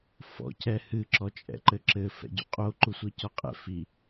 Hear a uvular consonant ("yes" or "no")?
yes